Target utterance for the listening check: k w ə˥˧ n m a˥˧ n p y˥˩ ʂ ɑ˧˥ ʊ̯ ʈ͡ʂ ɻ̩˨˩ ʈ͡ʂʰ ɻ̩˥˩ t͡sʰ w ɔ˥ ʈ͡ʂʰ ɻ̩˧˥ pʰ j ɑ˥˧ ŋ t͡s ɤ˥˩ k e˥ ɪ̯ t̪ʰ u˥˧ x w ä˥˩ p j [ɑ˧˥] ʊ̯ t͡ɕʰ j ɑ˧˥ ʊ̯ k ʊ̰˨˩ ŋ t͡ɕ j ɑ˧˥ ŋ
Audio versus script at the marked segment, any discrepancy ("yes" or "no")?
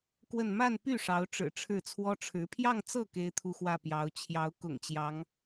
no